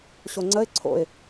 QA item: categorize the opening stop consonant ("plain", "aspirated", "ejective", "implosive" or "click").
click